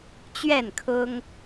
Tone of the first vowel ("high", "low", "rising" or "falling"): falling